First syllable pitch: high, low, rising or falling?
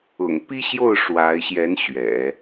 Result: low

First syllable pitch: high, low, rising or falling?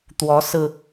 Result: rising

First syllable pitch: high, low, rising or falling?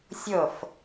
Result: falling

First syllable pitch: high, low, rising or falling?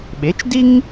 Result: rising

